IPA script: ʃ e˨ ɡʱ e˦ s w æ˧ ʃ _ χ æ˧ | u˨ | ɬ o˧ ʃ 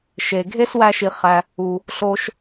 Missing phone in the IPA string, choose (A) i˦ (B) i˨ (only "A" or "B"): B